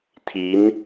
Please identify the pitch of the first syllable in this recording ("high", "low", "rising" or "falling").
rising